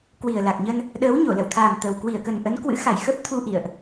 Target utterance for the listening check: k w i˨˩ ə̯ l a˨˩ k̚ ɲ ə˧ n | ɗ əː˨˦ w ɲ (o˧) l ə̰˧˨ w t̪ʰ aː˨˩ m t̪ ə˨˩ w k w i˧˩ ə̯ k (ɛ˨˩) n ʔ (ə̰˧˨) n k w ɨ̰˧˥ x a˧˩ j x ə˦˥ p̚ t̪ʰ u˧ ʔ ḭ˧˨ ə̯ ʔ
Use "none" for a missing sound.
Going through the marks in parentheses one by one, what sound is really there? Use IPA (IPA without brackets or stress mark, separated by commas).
o˧˩, ə˨˩, ə˨˦